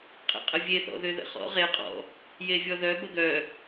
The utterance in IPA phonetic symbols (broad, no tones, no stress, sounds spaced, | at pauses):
qʼ ḛ qʼ ə vʲ e θ ɔ̰ ð ø ð ə̰ χ ɔ̰ ʁ e qʼ ɔ̰ | j e vʲ ɔ ð œ b ə ɡ œ